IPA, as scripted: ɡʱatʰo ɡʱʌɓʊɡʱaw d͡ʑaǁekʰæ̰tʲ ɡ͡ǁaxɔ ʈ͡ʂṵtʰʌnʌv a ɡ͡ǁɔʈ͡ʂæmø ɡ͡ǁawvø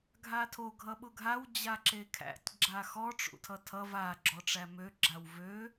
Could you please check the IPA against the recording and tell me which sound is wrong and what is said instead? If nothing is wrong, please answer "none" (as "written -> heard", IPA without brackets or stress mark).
n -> tʰ